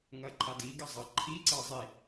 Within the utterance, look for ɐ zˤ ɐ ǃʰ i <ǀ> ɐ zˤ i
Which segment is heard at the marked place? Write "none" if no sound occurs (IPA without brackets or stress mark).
ǀ